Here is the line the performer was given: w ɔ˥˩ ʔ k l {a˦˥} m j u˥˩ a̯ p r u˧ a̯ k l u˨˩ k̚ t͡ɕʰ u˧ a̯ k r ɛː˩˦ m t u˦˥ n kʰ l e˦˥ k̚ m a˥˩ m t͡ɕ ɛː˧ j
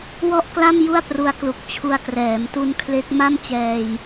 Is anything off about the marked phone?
yes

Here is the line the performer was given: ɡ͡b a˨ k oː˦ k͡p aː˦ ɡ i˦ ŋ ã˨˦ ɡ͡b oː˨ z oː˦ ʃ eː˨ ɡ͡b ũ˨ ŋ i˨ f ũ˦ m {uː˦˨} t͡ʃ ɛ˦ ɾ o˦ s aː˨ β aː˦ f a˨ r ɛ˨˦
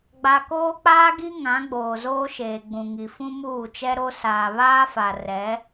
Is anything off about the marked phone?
no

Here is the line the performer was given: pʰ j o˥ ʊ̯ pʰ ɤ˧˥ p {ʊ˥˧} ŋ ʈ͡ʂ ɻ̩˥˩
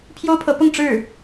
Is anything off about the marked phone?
no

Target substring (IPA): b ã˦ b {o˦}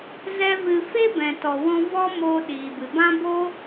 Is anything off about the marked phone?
no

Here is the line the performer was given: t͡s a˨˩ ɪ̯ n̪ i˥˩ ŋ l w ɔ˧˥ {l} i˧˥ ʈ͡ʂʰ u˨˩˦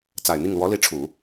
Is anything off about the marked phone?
no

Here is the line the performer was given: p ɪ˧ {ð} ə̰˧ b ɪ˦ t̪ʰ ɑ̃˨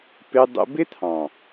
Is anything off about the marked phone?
yes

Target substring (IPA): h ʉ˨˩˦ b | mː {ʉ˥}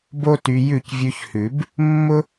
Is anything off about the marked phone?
yes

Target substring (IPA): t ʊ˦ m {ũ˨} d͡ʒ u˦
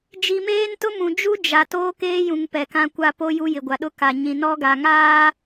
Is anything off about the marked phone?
no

